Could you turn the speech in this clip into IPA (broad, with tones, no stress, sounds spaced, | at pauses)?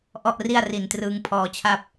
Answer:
ʔ ɔ˥˩ ʔ r i˥˩ a̯ r i˨˩ n t r ɯː˧ ŋ pʰ ɔː˧ t͡ɕʰ a˥˩ p̚